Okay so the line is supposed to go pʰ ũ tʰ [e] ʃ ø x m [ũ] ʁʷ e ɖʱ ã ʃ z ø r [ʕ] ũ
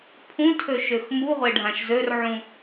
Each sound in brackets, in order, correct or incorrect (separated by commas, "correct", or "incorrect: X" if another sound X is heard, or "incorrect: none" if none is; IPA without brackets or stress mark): incorrect: ø, incorrect: u, correct